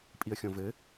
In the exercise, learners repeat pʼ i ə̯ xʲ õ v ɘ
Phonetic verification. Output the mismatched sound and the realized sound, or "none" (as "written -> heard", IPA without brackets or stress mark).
none